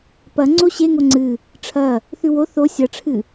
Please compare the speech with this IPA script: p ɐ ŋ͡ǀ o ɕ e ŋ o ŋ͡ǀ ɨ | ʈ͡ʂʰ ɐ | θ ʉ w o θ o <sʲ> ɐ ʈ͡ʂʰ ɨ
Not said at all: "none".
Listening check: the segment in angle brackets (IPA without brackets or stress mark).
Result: sʲ